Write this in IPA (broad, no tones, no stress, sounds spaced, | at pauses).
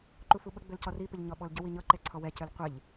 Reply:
ǃ u f u ɓ ə ɡ͡b ø l c ɔ r i p ə ʎ ɲ ɔ ɓ ɔ l ɟ ə w i ɲ ɤ ǃ ɛ ǀʰ ɔ w ɛ c ø l qʷ ɪ ʎ